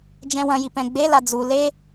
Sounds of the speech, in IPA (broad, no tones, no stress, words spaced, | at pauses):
d͡ʒɛ̃wɐ̃ji pɛ̃ɡ͡bela d͡zu le